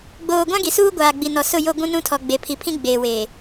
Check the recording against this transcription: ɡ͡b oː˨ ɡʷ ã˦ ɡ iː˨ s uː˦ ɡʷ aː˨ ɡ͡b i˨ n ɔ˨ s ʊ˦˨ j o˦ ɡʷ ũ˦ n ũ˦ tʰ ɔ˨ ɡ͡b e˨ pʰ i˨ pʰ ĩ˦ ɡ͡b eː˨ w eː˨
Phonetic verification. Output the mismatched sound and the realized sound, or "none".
iː˨ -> i˨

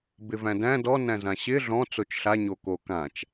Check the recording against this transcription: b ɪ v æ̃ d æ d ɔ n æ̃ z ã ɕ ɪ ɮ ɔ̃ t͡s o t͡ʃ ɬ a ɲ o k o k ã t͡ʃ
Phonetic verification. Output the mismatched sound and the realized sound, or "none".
æ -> æ̃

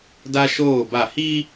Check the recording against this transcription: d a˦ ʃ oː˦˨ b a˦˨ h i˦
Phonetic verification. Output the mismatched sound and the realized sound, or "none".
none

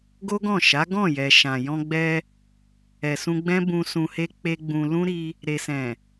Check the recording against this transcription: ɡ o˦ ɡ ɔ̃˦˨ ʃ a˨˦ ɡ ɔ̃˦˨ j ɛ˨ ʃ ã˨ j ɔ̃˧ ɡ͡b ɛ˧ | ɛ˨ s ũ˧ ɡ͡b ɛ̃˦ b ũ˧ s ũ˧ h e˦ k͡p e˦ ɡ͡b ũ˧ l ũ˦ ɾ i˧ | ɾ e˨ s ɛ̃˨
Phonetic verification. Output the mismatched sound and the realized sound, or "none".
none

